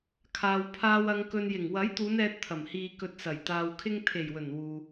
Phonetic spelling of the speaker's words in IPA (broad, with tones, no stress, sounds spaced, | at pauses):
kʰ aː˨ w pʰ aː˧ w ɐ˨ ŋ k ɵ˨ n j ɪ˨˩ ŋ w ɐ˨˥ j t̪ uː˨˧ n ɛː˧ t̚ t̪ʰ ɐ˨˩ m h iː˨ k ɵ˨ t̚ s ɐ˨˩ j t̪ aː˨ w kʰ ɪ˧ ŋ t̪ʰ e˨˩ j w ɵ˨˩ n w uː˧